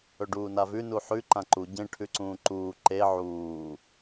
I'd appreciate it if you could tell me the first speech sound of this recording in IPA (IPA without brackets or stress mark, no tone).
ɵ